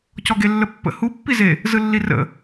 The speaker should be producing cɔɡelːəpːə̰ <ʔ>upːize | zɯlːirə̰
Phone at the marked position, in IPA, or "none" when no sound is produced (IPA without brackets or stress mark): h